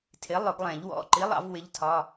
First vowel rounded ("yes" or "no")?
no